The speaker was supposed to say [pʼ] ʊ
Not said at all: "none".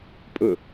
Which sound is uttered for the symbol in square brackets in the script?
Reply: pʼ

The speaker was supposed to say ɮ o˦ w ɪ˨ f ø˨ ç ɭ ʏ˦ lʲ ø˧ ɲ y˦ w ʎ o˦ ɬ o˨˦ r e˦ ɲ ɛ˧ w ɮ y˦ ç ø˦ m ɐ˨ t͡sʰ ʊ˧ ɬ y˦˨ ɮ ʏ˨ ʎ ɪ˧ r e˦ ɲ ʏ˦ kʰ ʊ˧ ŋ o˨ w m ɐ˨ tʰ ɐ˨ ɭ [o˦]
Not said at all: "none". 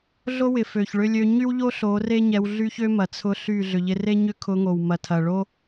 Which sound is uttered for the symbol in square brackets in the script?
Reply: o˦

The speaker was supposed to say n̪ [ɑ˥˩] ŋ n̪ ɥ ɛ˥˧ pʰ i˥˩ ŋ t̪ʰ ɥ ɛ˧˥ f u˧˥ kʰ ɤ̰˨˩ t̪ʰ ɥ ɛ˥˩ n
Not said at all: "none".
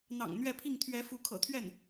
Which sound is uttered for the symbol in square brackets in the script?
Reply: ɑ̰˨˩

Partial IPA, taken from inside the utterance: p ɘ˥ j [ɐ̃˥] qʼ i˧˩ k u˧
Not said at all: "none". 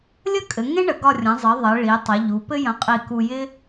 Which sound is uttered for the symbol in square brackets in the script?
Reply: ɐ̃˧˩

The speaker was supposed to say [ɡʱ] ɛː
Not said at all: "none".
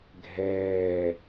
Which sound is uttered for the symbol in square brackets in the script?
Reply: ɡʱ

